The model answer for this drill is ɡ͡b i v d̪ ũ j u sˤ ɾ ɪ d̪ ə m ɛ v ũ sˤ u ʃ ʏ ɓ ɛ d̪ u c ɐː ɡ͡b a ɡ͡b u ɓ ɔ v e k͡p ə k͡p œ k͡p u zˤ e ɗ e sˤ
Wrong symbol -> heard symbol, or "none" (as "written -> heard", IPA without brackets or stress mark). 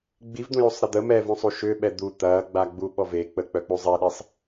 c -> t̪